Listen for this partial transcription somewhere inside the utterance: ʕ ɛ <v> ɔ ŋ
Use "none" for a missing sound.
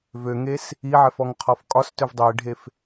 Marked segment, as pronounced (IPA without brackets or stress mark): f